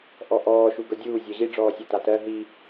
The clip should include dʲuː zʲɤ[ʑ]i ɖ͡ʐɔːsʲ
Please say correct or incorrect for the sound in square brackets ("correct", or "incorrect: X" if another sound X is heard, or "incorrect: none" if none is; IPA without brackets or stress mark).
correct